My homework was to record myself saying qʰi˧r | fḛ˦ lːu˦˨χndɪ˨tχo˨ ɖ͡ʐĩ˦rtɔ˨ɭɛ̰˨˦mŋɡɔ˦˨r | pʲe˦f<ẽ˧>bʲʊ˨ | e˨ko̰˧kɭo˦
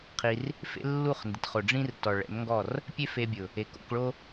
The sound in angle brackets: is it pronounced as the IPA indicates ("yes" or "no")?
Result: no